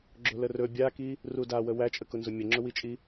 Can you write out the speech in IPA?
ɡ͡ǁ ʊ l ə r ɵ bʲ a k i | r u d a w ə w æ t͡ʃʼ ə k ʊ n z ʊ mʲ ə ŋ͡ǁ ʊ w i t͡ʃʼ i

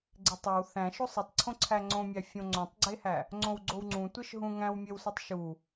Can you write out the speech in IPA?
ɡ͡ǀ e tˤ e w θ æ̃ ʃ o sˤ i tˤ ǀʰ õ ǀʰ æ ŋ͡ǀ õ mʲ æ fʲ õ ŋ͡ǀ õ tˤ ɡ͡ǀ e h æ | ŋ͡ǀ õ w ɡ͡ǀ o w ŋ͡ǀ ũ tʷ e ʃ ɦ ũ ŋ æ̃ w mʲ e w s ɒ tˤ ʃ u

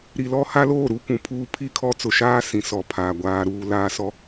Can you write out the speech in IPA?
ɾ i˨ l ɔ˦ h a˦ l oː˦˨ ɾ u˦ kʷ ũ˨ pʰ uː˦ pʰ i˦˨ kʰ ɔ˦ t͡s ʊ˨ ʃ aː˦ s ĩ˨ s ɔ˨ pʰ aː˨ ɡʷ aː˦ ɾ uː˦ l aː˦ s ɔ˦

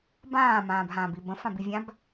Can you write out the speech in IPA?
b ãː m ãː b ɦ ãː b i b ə̃ f ã b i vʲ ã b

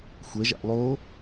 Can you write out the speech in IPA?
xʷ ɛ ʒ a̰ ʔ lˠ o

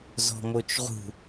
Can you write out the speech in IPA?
z ɔ̤ m o t͡ʃ ʁ ṳ

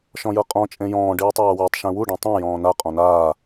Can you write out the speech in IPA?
ʃ ɔ̃ j ɤ qʼ ɔ̃ t͡ʃʼ ẽ j ɔ̃ː ɖ iː tˤ aː w e tˤ ʃ ẽ w u ɖ ẽ tˤ ẽ j ɔ̃ː n a qʼ ɔ̃ n aː

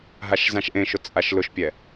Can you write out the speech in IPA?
ɦ a ʃ z ã ʃ ʔ ẽ ʃ ʊ t͡sʼ a ʃ l ʊ ʃ pʲ ɛ

